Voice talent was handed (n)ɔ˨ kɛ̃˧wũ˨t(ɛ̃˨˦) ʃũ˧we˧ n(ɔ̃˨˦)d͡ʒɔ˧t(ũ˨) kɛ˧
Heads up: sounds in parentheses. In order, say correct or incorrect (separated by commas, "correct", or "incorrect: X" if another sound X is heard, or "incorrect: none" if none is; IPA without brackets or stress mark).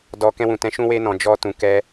incorrect: d, correct, incorrect: ɔ̃˨, correct